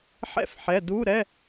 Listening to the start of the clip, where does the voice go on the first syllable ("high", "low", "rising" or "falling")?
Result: falling